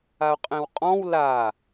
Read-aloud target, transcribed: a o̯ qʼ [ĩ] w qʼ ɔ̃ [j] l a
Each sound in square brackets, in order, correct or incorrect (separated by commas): incorrect, incorrect